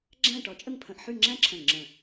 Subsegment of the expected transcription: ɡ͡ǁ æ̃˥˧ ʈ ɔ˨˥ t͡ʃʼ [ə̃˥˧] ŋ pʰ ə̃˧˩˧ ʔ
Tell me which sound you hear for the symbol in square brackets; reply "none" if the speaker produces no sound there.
ə˥˧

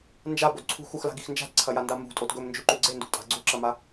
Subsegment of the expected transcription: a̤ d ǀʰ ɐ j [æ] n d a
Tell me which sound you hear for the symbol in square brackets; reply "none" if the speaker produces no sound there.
a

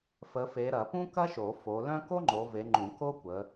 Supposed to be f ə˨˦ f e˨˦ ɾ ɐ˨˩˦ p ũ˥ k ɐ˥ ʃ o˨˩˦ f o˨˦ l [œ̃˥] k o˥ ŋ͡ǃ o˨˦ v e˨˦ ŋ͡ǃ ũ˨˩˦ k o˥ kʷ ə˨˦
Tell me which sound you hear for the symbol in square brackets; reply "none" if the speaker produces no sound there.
œ̃˥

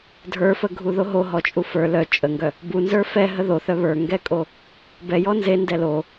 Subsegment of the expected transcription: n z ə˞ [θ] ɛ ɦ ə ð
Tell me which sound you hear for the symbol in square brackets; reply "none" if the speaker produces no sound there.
f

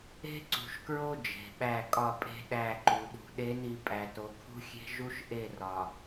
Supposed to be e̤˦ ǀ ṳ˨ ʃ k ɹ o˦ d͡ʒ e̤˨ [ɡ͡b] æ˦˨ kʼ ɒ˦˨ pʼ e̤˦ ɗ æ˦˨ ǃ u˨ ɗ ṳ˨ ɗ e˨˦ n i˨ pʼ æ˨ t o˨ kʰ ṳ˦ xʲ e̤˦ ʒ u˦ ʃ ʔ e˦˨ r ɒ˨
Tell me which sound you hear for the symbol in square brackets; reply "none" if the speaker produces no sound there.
ɓ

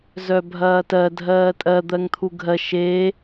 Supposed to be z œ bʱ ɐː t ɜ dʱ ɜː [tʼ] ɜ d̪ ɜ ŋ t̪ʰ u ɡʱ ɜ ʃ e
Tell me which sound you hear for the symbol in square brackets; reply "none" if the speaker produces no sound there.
tʼ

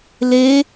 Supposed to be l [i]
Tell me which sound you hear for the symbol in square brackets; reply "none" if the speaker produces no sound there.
e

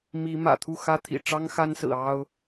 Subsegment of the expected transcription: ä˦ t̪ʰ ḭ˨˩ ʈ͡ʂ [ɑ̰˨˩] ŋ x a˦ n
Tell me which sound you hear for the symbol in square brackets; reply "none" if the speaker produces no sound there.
ɑ˦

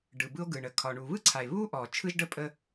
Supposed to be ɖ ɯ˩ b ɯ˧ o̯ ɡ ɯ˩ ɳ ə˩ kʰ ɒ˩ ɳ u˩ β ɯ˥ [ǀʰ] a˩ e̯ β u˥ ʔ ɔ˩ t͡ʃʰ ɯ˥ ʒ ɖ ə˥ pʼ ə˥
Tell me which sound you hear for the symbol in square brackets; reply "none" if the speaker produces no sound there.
ǀʰ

